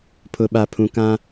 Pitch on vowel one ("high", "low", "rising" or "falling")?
low